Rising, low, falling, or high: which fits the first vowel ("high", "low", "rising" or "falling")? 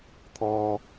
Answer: high